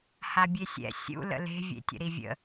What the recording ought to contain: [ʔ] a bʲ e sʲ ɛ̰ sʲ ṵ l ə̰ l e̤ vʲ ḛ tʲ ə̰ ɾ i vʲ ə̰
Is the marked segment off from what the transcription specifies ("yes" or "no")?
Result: yes